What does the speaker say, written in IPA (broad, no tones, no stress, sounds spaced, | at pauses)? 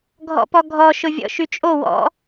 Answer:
ɡʱ ɔ̰ p ɔ ɡʱ ɔ ʃ ʊ vʲ ɔ̰ ʃ y t͡ʃʼ o w ɔ̰